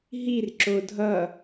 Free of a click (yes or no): no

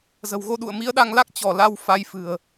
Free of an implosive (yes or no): no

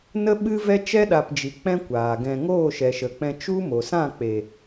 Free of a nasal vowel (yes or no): no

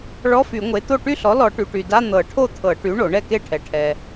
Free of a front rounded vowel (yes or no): no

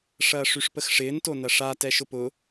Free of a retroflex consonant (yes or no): no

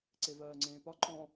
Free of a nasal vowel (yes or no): no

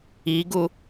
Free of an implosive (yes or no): yes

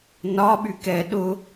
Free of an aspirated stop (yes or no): yes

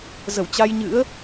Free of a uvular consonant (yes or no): yes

